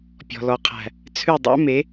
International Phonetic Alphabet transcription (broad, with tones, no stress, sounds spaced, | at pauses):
pʲ ɔ̤˨ l ɔ˨ qʰ æ̤˨ | t͡sʰ ʉ˦˨ dˤ æ̰˦ m e˨˦